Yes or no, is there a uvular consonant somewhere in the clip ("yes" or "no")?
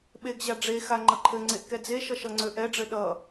no